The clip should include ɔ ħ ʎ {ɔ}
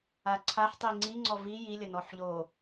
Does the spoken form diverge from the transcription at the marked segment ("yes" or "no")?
yes